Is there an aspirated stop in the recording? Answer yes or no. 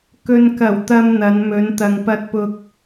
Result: no